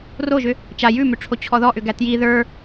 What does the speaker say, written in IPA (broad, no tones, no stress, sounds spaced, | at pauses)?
r o ʒ ʏ | t͡ʃ a j ʉ m ʏ ʈ͡ʂʰ o t͡ɕʰ ɔ ð ɔ ʔ ʏ ɡ æ t j i ð ə˞